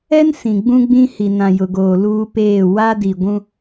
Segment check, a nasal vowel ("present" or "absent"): present